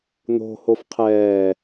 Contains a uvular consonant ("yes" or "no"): yes